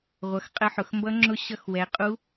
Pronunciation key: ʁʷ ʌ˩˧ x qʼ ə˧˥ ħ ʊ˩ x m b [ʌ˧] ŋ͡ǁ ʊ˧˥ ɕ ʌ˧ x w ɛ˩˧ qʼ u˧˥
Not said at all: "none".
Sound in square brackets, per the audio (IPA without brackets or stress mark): ʌ˧˥